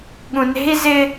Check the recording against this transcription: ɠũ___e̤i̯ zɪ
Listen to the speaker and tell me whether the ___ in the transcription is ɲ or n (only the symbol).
n